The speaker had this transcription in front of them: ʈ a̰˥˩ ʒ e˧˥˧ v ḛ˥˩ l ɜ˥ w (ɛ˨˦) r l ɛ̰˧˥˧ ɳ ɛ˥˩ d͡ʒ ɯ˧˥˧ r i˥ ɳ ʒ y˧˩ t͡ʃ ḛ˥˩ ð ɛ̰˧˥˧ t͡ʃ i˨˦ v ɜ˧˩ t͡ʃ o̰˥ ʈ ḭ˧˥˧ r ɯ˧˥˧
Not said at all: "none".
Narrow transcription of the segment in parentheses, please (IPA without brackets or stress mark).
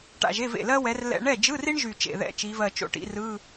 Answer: ɛ˨˦